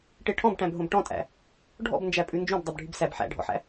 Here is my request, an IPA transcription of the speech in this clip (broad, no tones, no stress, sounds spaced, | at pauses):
ʈ e ʈʰ ɔ̃ b ʈ æ̃ b ɦ õ b ʈ ɔ̃ tʼ æ̰ | ɖʱ ɔ̰ b n d͡ʒ æ pʼ ʉ n d͡ʒ õ b dˤ œ b ɖʱ y b s æ b ħ æ̰ ɖʱ ɔ̰ ħ æ̰